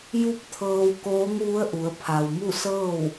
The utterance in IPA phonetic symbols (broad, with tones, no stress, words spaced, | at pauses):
ju˧˥p̚ t̪ʰɤː˧wkoː˧˥ŋ ʋu˧˥ə̯ʔu˩˧ə̯ pʰa˩wmu˥˨sɤː˥˨w